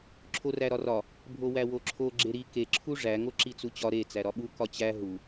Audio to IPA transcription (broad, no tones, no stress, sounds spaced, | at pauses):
ǁʰ o r æ ɾ ɒ r ɒ | bʱ o w æ w o ǁʰ o ɡ͡ǁ e ɾ i k e ǁʰ u ʐ æ ŋ o ǁ i t͡s u t͡ɕ ɒ ɾ e t͡s æ ɾ ɒ ɓ u k ɒ t͡ɕ æ ɦ u